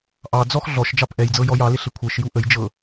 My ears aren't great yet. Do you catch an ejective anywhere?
no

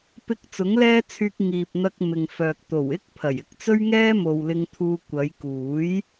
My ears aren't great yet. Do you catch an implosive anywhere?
no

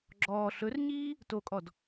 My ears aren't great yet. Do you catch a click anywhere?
yes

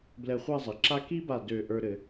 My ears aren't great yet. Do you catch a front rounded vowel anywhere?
yes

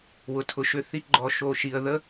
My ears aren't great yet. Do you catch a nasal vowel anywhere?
no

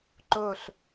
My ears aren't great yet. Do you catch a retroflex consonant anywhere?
no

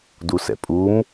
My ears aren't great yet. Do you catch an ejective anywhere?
yes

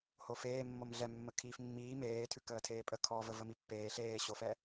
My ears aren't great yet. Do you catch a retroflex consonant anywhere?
no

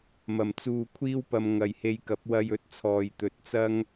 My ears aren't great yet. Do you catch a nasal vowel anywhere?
no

